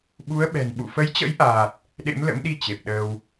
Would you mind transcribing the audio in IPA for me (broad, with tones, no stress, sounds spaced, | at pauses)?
ɓ u˨˦ ə̯ ɓ ɛ̤˨˩ n ɓ ṵ˧˨ f ə˨˦ j t͡ɕ ə̰˧˥ j ʔ aː˨˩ t̚ | ɗ ḛ˧˥ m l ə̰˧˥ m ɗ i˧ t͡ɕ e˨˩ p̚ ɗ əː˧ w